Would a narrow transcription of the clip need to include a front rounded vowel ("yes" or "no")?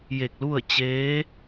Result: no